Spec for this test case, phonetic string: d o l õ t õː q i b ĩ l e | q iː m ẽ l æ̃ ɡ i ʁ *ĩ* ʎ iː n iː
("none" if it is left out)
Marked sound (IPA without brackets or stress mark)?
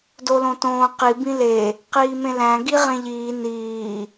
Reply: ẽ